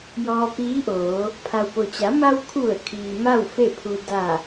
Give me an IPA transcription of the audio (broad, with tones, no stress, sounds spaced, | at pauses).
j ɔː˧ p iː˧˥ ʔ oː˩˧ | pʰ a˩ w p o˩ t͡ɕ a˩˧ m a˧ w kʰ u˧˩ ə̯ kʰ iː˩ m a˥˨ w f e˥˨ pʰ u˧ d a˧˩